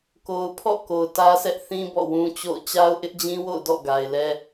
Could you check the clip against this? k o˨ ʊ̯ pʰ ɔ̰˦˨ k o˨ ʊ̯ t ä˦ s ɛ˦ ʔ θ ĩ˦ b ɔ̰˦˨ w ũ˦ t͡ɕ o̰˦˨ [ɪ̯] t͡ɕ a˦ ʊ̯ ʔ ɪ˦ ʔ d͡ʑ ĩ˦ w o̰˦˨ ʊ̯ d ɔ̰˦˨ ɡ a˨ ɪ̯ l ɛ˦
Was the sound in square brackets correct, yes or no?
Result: no